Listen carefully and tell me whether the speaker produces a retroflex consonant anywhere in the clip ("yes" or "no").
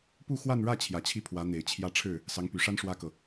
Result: yes